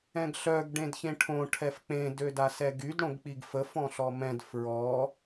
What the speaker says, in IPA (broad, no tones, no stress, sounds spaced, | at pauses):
ɛ̃ ɡ ɬ œ ɡ ɖ ẽ d ç ẽ ʈʰ õ ʈʰ ɛ f k͡p ẽ d ø d a s ɛ ɡ y d ɽ õ ɡ k͡p i ɡ f ə f ɔ̃ ɬ ɔ m ɛ̃ d f ɹ ɔ